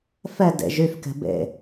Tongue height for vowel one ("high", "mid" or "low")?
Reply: mid